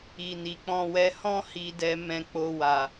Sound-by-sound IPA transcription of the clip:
i˨ n i˨ k͡p ɔ̃˧ w ɛ˧ h ɔ̃˦ h i˦ d ɛ˦ m ɛ̃˧ k͡p o˧ w a˨

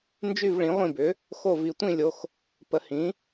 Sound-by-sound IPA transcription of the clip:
n d͡ʒ y˥˨ v ɭ ĩ˨˥ ʁʷ ĩ˥˨ b ʏ˨˥ | x o˥˨ v i˧ tʷ ĩ˥˨ lʲ o˧ x | p ə˨˥ h ĩ˨˥

